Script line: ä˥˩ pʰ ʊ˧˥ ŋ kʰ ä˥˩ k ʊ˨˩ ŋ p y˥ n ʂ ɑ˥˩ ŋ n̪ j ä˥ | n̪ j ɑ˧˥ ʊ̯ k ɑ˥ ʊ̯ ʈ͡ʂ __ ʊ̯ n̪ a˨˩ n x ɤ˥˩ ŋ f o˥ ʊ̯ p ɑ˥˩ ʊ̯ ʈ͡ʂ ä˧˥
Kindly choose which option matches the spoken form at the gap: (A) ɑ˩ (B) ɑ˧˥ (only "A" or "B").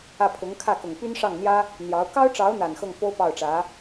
B